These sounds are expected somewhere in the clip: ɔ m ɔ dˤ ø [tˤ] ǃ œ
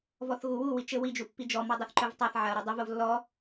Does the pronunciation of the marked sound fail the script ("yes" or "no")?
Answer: yes